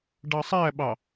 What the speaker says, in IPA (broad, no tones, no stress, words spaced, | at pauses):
ɖɑsˤæɓɑ